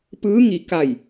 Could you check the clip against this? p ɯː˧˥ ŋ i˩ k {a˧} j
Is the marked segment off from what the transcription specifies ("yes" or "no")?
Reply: yes